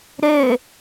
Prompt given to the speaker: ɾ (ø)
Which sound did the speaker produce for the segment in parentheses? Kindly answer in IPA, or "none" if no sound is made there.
ø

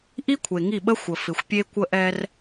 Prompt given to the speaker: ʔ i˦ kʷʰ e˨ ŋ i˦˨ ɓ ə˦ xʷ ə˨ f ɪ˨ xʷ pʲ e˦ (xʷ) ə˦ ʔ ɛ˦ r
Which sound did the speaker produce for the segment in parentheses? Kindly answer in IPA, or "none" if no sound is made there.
kʷ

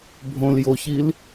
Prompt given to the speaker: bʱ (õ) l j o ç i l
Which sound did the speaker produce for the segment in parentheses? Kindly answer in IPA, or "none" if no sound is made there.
õ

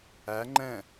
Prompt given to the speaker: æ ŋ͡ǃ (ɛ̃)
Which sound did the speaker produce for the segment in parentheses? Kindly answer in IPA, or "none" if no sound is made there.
ɛ̃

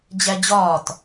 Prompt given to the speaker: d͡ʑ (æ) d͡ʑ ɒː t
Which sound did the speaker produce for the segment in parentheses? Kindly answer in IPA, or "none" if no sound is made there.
æ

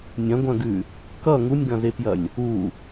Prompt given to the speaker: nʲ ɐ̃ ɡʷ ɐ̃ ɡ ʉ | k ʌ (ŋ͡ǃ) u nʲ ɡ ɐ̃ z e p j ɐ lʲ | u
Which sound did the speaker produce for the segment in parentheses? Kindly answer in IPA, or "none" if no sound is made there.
ŋ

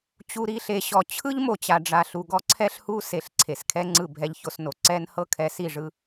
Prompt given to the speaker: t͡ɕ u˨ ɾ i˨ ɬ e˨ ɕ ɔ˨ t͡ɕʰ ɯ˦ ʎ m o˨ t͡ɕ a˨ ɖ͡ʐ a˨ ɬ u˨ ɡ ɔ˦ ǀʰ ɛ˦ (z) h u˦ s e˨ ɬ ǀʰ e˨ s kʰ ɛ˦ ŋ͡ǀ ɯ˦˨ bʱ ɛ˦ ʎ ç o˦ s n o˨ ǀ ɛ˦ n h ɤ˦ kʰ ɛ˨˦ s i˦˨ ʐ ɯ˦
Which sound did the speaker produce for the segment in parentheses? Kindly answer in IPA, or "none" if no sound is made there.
ɬ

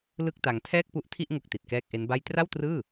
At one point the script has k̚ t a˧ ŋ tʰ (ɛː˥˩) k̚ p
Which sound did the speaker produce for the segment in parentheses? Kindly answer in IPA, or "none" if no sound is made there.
ɛː˥˩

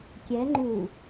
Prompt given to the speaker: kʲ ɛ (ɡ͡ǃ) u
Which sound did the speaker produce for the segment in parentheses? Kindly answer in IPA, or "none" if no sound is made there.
ŋ͡ǃ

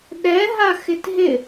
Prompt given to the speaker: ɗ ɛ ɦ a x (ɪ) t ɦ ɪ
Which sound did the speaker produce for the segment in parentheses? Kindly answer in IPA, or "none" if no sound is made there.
ɪ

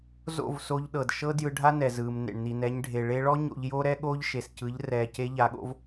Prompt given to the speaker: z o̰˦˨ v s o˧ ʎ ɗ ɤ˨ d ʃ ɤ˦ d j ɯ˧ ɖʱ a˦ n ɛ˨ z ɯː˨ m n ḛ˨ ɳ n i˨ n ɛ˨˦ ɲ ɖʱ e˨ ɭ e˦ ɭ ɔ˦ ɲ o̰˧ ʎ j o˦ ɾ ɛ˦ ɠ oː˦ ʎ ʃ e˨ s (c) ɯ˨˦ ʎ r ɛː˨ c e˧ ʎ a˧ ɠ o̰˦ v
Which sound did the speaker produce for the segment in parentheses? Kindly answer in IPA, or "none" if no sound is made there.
c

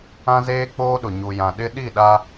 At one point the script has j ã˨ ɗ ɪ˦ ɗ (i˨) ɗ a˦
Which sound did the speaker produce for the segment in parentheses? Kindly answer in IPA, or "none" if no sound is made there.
i˦˨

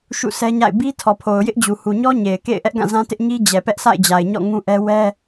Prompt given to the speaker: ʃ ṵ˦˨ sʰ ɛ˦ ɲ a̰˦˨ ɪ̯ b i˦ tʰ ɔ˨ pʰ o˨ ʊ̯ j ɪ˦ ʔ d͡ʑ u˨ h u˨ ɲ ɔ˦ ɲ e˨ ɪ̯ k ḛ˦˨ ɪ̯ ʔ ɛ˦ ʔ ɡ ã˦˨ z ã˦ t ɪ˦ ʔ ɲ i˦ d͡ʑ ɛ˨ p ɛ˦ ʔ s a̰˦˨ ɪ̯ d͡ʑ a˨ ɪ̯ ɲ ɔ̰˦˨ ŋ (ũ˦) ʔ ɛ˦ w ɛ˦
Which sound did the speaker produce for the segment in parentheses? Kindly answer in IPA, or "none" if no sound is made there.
ũ˦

